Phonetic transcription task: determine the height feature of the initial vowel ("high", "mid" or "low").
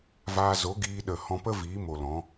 low